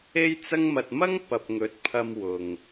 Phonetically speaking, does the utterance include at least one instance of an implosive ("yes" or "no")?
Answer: no